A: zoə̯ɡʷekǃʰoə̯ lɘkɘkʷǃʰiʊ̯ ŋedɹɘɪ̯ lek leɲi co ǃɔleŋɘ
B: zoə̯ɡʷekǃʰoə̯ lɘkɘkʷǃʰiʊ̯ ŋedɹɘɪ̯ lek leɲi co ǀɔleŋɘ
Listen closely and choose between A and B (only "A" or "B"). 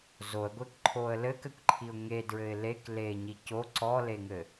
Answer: B